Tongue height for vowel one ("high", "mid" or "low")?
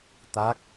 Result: low